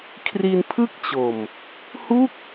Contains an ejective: no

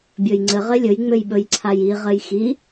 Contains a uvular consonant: yes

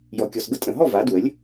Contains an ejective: yes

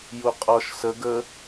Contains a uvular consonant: yes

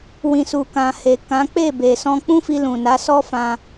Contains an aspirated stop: no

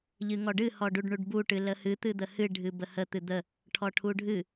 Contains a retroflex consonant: yes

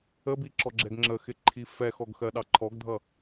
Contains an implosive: yes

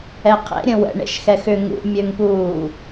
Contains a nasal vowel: yes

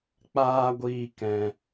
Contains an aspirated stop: no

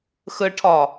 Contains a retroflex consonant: yes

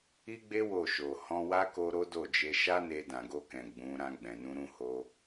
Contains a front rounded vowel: no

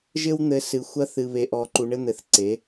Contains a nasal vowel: no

